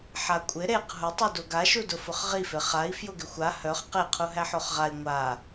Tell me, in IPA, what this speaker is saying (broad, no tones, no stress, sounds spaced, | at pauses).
ħ a kʷʼ ɪ ɾ e q ɦ ʊ tˤ u d o ɡ a ʃ u d ʊ f ʊ χ ʁ i f e χ a i̯ f j ʊ ɡ ɪ xʷ a h œ χ q e qʰ u ɦ æ ħ o χ ʁ a i̯ ŋʷ a